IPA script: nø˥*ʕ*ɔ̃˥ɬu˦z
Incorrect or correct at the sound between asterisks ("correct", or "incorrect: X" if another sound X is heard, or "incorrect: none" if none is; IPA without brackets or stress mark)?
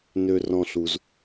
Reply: incorrect: r